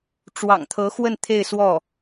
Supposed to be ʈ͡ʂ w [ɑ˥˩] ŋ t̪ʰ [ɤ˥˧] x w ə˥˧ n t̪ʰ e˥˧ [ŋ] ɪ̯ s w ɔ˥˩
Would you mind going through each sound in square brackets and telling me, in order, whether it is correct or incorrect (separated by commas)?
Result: incorrect, incorrect, incorrect